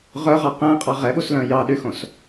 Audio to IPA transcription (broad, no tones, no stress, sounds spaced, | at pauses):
ʁ œ ʁ ɑ q æ̃ qʼ ɑ ʁ ɛ ɓ u s l œ̃ j ɑ ɗ y x õ s